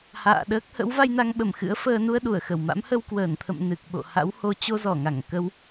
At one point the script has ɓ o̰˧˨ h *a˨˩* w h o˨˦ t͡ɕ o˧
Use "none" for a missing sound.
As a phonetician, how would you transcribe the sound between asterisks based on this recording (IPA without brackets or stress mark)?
a̰˧˥